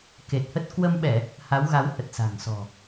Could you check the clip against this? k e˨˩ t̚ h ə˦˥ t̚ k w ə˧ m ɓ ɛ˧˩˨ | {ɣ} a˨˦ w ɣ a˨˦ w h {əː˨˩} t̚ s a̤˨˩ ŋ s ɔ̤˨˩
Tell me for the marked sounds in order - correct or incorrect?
incorrect, incorrect

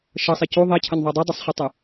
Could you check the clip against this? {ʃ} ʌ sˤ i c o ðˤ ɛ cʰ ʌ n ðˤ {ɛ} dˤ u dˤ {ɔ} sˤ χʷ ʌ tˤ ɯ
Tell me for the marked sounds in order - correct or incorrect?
correct, correct, incorrect

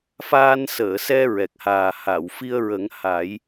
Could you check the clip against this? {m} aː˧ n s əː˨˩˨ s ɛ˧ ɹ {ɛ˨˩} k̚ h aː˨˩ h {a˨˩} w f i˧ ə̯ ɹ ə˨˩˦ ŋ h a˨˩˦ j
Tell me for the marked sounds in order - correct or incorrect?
incorrect, correct, incorrect

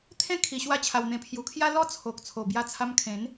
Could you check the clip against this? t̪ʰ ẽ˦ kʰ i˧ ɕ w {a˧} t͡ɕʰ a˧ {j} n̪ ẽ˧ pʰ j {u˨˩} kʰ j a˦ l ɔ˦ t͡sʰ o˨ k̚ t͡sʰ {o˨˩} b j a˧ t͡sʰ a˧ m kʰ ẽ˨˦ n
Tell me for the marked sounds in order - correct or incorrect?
incorrect, incorrect, correct, correct

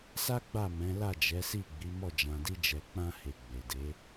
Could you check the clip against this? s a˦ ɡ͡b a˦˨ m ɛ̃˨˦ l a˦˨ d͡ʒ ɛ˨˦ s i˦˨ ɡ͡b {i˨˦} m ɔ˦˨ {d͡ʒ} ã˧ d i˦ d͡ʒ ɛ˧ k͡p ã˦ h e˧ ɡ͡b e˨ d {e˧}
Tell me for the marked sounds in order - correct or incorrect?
correct, correct, incorrect

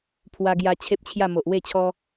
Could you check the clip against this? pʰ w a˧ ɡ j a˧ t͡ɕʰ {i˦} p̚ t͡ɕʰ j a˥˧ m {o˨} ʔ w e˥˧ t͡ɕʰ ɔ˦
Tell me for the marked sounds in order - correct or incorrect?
incorrect, correct

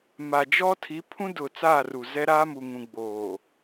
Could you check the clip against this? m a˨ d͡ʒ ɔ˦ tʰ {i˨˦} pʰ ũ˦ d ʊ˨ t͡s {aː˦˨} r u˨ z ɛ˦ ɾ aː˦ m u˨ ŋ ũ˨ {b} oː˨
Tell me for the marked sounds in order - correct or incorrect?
correct, correct, incorrect

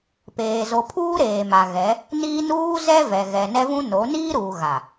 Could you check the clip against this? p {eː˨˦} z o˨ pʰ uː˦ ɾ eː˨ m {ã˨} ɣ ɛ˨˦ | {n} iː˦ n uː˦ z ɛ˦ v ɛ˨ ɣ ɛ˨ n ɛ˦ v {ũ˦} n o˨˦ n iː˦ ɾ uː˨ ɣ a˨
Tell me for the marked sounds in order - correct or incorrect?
incorrect, incorrect, correct, correct

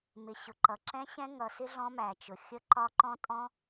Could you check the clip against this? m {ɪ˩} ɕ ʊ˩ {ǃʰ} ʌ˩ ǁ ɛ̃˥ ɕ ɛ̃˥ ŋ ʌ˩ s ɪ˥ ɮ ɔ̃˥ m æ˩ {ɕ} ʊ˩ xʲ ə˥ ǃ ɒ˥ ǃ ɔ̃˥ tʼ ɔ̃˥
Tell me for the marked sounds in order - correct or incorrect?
correct, incorrect, incorrect

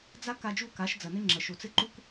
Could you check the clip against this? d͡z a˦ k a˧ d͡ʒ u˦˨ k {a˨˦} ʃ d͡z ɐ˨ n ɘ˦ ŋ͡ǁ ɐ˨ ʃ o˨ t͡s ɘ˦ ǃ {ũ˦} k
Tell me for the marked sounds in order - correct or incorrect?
correct, incorrect

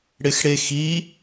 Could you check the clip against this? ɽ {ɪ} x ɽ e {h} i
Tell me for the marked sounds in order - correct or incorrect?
correct, incorrect

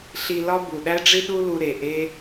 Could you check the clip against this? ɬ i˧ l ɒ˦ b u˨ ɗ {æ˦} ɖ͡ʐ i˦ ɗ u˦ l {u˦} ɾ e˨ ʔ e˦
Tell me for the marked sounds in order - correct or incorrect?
correct, incorrect

